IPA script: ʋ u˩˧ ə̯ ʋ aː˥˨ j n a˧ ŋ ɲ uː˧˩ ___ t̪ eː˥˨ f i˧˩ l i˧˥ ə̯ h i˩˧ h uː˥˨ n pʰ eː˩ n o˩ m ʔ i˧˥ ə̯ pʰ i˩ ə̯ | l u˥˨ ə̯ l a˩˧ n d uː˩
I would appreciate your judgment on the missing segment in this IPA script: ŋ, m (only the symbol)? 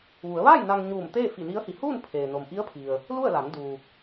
m